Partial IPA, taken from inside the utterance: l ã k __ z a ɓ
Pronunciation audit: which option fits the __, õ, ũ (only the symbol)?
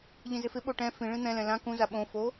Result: ũ